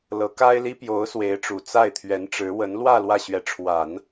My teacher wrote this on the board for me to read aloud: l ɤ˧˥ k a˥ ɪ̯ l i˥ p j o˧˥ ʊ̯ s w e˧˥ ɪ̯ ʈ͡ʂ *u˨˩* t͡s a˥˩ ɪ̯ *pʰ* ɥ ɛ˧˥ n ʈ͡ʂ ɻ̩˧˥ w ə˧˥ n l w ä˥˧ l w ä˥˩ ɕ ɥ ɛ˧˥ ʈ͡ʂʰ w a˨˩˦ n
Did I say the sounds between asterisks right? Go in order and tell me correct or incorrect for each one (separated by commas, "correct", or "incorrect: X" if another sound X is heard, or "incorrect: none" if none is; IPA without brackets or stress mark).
correct, incorrect: t̪ʰ